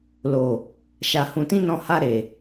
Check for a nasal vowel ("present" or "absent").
present